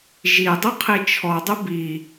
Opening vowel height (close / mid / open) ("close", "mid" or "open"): close